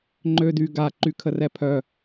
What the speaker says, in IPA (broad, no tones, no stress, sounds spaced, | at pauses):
ŋ͡ǃ ø d y ɡ a ǃ y kʰ ə r ɛ pʰ œ